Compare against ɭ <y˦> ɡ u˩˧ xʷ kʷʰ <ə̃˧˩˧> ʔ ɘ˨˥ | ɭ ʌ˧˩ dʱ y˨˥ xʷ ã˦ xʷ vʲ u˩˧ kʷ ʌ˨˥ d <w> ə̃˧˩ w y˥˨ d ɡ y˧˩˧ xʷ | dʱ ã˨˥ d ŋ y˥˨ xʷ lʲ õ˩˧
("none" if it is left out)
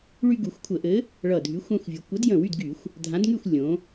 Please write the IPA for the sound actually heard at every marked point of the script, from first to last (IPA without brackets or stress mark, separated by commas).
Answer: y˦, ə˧˩˧, j